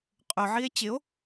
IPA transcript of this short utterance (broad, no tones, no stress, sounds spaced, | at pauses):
qʼ ɵ ʕ i e̯ t͡ɕ ɪ o̯